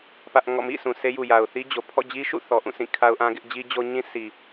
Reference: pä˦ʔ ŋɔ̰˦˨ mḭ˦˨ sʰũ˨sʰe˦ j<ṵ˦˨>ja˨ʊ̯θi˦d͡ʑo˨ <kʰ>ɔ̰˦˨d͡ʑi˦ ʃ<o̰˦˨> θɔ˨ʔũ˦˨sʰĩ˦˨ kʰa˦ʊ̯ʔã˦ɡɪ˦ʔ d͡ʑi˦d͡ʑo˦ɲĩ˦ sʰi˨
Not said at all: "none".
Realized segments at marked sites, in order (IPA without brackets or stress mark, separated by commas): u˨, pʰ, ṵ˦˨